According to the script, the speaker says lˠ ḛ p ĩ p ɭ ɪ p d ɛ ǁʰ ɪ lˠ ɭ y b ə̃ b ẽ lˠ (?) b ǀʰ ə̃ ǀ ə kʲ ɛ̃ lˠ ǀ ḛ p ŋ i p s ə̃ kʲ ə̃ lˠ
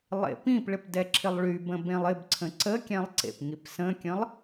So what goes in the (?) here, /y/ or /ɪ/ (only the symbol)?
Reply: ɪ